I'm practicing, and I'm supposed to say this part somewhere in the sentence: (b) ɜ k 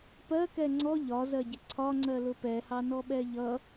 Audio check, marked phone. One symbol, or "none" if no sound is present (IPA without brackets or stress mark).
p